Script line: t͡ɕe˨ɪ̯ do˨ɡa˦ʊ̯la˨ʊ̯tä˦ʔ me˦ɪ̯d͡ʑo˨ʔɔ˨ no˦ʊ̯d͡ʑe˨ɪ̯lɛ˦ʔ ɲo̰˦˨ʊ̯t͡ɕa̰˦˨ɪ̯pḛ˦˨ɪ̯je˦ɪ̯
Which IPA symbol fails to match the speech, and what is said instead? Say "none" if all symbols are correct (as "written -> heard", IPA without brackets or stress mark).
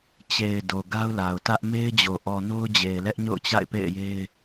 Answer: none